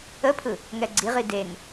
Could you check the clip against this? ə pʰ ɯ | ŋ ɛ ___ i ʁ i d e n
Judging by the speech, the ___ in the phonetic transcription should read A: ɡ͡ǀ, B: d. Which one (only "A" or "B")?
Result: A